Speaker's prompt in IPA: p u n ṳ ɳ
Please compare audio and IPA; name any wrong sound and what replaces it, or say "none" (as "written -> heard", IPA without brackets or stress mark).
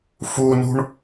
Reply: p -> f